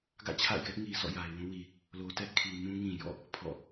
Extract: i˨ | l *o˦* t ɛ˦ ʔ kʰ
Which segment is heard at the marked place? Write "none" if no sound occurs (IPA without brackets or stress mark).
o˨